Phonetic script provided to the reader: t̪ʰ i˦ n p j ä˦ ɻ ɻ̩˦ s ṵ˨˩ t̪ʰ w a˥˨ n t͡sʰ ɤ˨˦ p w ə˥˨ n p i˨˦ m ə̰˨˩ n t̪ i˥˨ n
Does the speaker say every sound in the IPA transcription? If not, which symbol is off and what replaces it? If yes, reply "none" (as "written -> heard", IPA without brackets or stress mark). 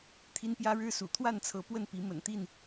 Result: none